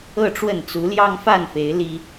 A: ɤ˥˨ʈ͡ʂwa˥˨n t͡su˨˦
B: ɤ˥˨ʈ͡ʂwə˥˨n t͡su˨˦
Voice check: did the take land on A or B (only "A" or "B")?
B